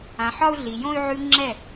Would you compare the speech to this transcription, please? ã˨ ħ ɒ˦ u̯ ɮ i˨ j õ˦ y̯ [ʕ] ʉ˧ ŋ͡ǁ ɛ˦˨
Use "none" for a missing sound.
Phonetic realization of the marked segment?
ʕ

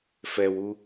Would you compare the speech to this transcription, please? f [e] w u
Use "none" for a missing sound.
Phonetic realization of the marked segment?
ɛ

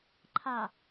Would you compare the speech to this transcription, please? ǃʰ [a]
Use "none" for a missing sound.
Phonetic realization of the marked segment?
a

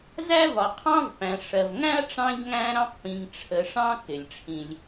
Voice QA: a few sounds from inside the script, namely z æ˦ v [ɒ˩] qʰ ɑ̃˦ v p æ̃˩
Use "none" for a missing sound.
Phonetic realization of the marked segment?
ɒ˩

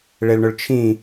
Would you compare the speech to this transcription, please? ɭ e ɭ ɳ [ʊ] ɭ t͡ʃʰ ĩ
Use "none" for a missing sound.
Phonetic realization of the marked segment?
ʊ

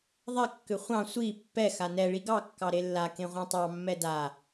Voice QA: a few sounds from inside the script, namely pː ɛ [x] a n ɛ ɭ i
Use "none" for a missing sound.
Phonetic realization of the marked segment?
x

